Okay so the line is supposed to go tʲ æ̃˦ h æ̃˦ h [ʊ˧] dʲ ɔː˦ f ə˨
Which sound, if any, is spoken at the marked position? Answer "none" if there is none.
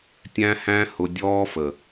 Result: ʊ˧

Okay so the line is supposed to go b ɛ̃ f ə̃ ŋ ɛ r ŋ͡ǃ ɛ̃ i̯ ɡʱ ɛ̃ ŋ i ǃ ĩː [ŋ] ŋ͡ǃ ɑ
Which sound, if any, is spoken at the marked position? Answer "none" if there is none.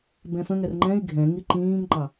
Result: ŋ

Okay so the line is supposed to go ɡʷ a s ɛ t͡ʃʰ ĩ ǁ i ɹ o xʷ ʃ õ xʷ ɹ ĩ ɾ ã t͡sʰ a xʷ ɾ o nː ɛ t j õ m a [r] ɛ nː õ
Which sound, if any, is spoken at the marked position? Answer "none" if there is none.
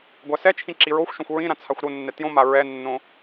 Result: ɹ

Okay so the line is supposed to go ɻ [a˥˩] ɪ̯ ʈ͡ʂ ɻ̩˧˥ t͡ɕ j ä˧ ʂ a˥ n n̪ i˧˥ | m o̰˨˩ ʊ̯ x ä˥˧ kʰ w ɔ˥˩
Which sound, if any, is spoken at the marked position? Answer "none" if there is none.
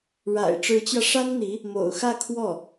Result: a̰˨˩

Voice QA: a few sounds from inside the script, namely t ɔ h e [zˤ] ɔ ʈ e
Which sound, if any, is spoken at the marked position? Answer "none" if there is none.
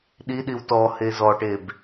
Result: z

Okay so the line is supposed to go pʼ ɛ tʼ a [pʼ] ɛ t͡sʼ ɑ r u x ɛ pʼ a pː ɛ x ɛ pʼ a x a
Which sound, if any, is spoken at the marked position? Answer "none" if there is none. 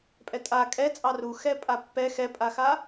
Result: kʼ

